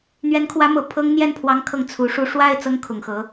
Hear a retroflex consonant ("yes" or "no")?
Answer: yes